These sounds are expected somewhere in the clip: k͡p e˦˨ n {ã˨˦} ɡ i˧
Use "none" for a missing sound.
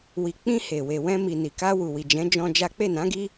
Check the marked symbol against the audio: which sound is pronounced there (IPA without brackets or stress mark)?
ã˨˦